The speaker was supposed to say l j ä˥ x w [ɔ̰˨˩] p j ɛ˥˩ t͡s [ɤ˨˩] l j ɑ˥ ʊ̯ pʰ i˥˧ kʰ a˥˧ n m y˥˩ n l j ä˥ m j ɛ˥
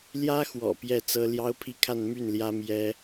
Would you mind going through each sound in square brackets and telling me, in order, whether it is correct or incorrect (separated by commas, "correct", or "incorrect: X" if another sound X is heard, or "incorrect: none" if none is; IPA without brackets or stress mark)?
correct, incorrect: ɤ˥